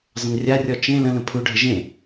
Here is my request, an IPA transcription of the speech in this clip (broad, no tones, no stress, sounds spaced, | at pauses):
zˤ ə̃ n rʲ a rʲ ɔ t͡ʃ ẽ l ə̃ l ə̃ pʰ u ɖʱ ə ʒ ẽ